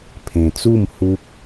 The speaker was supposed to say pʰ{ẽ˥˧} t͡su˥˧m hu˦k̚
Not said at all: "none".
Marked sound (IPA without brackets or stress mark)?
ẽ˧